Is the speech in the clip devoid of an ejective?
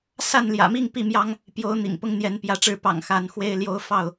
yes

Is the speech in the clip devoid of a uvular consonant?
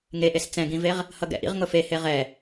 no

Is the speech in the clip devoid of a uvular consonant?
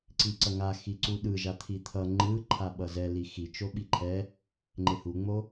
yes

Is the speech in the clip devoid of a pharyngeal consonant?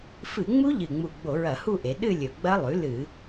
yes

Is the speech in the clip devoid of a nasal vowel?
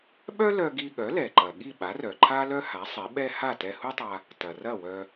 yes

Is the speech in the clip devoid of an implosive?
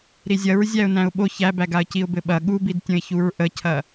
no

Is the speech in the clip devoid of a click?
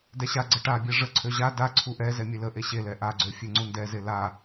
no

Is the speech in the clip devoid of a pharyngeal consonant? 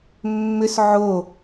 no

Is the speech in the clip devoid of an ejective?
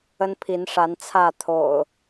yes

